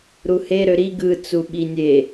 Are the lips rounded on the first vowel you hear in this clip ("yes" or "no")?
yes